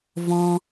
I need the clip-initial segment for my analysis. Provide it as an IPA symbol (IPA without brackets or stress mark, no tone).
v